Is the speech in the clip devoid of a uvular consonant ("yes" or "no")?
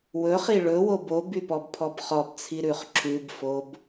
no